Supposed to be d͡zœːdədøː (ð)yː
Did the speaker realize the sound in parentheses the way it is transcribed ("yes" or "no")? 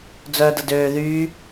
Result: yes